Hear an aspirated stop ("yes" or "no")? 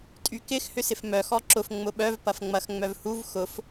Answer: no